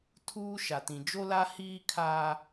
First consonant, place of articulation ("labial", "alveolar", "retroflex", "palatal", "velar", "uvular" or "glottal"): alveolar